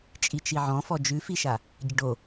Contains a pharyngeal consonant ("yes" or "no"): yes